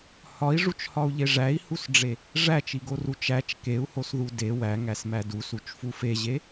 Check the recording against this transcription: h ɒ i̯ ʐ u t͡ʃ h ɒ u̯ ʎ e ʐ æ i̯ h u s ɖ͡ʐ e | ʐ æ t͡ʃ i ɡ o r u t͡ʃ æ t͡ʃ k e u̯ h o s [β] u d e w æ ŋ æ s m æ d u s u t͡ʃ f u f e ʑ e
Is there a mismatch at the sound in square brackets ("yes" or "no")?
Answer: yes